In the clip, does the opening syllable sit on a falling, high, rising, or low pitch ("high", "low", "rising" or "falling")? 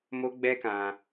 high